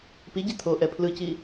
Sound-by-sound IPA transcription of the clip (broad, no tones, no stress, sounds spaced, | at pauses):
p i ɟ i t̪ʰ o ʔ ɛ pʰ l ɯ c i